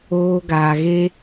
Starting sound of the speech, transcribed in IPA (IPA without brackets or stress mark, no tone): oː